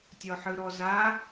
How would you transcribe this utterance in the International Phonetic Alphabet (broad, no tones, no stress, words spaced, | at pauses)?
tʲɔħɯɾɔza